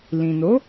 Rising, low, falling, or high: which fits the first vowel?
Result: low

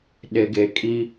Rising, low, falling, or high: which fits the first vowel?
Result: low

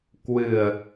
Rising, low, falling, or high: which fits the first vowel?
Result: low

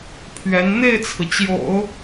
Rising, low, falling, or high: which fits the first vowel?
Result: rising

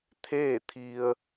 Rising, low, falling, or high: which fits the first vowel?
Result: falling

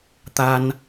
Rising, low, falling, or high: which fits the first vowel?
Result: high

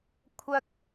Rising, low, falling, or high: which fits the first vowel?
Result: high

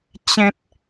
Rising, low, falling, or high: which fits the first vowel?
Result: high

